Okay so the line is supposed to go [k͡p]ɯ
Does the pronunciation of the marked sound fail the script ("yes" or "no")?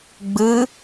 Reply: yes